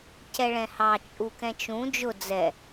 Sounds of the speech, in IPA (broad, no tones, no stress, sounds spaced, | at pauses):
c ɛ ɭ ɛ̃ h ɑ t͡ʃʼ u k ɛ̃ t͡ʃ ũ d͡ʒ ʊ d͡z ɛ